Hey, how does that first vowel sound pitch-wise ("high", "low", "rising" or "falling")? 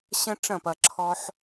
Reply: high